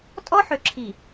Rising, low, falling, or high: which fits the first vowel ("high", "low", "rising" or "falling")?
high